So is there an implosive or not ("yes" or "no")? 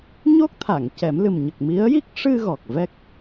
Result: no